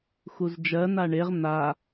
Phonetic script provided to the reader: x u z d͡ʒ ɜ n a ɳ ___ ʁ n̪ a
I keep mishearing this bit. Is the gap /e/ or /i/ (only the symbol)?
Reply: e